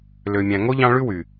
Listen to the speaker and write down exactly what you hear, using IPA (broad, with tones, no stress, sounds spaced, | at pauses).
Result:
l ø˨ mʲ æ̃˨ ŋ o˥ ʎ ɑ̃˦ ɭ ʉ˥ w y˩